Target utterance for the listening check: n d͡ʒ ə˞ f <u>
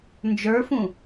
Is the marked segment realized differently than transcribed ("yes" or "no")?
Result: yes